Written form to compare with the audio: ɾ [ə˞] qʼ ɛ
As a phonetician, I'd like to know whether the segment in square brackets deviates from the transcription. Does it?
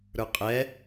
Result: no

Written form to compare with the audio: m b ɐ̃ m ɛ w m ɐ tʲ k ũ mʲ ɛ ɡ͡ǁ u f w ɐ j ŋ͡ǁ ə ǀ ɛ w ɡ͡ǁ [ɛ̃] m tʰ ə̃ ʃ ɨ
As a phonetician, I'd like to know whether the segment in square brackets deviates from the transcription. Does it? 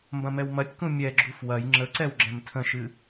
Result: no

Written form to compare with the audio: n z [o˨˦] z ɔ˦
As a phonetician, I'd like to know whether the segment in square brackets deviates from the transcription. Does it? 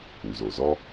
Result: yes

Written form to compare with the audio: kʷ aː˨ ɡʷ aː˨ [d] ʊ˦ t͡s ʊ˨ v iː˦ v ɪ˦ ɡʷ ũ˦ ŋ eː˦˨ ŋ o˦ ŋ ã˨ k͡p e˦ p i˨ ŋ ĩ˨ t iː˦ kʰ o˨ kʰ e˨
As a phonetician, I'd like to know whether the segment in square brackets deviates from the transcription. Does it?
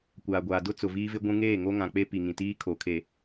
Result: no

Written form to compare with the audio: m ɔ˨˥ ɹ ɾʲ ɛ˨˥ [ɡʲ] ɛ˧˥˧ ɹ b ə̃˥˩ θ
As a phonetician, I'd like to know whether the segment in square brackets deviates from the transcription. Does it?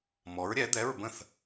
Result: yes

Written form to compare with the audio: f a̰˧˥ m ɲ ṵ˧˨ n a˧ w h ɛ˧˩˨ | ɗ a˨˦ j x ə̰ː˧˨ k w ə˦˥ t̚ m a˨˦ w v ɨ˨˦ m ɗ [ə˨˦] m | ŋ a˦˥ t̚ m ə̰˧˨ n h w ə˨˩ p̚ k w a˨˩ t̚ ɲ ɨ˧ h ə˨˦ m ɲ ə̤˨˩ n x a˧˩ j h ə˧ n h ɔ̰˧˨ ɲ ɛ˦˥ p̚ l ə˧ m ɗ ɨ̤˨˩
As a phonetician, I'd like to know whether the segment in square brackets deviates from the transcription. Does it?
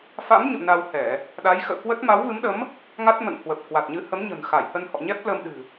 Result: no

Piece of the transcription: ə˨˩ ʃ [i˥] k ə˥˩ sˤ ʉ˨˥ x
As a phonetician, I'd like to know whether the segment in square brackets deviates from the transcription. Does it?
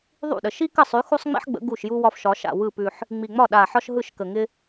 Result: no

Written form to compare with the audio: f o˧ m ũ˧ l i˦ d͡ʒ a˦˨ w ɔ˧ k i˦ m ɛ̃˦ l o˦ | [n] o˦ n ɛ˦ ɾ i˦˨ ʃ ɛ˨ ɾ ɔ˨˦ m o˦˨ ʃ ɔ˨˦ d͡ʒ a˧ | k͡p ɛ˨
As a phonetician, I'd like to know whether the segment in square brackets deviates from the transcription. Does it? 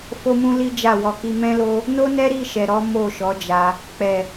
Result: no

